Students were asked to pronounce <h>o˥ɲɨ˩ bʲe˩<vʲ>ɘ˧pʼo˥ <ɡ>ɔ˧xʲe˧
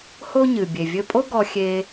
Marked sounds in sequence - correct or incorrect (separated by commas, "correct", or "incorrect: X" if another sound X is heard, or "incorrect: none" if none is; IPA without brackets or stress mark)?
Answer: correct, correct, correct